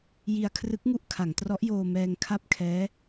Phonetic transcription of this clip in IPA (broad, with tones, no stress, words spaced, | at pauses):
ji˧a̯kʰrɯ˦˥k̚ŋu˦˥ʔ kʰa˩˦ŋtrɔ˦˥ʔjoː˧ mɛː˧ŋkʰa˥˩p̚kʰɛː˦˥